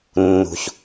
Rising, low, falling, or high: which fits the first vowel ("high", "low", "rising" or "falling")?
low